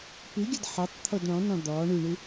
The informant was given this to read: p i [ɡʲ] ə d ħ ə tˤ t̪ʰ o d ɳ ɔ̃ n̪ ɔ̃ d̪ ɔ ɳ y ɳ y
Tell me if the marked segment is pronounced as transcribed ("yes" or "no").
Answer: yes